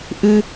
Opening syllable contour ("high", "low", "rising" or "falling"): low